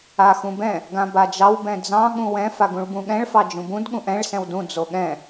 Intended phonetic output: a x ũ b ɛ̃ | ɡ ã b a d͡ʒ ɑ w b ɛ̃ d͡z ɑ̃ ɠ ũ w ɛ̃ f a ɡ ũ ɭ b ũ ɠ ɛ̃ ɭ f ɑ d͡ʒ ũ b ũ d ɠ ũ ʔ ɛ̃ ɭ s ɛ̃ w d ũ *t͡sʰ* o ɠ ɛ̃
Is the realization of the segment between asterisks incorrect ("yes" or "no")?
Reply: yes